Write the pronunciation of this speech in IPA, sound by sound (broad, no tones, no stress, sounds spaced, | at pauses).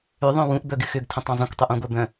ʏ ðˤ œ̃ w ũ ʔ b œ ɡ ɪ x ʏ ɡ tʰ ə̃ tˤ œ̃ zˤ ə̃ kʷ tˤ ʏ ʔ ũ ɡʷ œ b œ̃